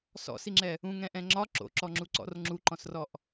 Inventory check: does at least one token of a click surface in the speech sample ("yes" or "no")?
yes